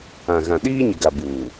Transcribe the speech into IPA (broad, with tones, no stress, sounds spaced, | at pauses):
ã˨ ɣ ã˨ ɗ iː˦ ɲ ɪ˨ ɡ a˨ b uː˨